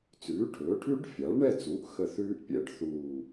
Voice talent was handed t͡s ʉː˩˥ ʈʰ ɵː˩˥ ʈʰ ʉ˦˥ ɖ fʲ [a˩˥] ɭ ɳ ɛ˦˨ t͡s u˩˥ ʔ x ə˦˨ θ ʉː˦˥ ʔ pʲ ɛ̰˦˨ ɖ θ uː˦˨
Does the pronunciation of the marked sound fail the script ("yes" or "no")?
no